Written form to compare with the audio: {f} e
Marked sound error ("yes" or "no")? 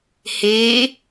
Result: yes